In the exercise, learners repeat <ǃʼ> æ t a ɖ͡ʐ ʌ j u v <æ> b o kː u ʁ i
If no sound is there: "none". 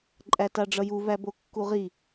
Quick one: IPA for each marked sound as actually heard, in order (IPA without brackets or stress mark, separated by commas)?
ǃʼ, æ